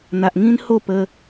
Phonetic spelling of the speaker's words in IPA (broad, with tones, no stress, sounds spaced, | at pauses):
n̪ a˨ ʔ ŋ ĩ˦ n h o˥˧ p ə˧